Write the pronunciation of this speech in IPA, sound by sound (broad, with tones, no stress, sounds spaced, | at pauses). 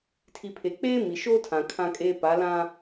tʰ i˨ pʰ e˨ k͡p eː˦ m i˨ ʃ oː˦ tʰ ã˨ kʰ ã˦ kʼ eː˦ p a˨˦ l ã˦